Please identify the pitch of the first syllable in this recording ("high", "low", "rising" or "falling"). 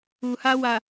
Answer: low